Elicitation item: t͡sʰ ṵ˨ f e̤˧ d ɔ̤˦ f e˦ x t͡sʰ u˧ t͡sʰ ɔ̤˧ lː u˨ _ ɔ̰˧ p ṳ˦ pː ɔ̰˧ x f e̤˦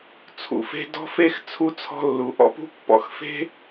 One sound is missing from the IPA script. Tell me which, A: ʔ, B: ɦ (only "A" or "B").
A